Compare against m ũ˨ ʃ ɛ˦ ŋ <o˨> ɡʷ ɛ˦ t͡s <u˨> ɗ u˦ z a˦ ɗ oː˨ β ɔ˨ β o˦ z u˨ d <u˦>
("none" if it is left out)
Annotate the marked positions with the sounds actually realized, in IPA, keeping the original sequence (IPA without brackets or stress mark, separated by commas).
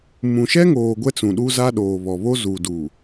oː˨, ũ˨, u˨